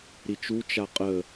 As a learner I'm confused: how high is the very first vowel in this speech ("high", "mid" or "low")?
high